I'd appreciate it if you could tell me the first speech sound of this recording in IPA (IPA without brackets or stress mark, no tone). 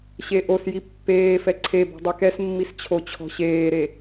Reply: ɕ